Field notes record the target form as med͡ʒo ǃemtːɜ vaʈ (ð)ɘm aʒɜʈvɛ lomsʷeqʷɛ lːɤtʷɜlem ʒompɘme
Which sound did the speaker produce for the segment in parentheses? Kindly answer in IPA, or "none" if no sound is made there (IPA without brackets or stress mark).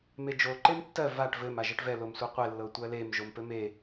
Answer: v